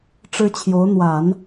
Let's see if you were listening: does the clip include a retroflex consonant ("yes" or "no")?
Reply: yes